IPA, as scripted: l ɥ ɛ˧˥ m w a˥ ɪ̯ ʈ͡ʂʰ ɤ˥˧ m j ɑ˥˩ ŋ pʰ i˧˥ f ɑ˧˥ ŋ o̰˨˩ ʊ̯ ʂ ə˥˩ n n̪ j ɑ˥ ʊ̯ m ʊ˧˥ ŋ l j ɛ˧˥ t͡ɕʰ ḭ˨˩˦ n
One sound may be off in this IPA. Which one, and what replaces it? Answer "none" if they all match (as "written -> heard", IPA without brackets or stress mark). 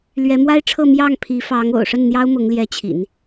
none